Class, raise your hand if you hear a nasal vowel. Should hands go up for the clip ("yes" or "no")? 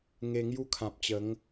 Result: yes